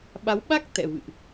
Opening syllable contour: rising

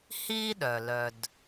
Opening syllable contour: high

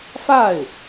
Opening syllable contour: falling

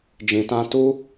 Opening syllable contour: low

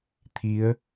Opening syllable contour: rising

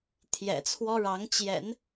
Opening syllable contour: low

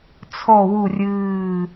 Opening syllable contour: low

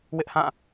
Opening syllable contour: high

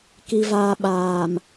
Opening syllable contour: high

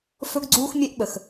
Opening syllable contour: high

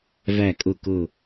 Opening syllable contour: low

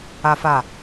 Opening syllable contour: high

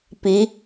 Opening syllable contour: rising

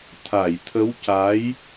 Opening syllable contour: low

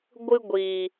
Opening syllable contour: high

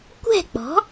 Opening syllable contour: falling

